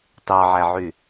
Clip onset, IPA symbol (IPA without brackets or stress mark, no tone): t